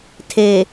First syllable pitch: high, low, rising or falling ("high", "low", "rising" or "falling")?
low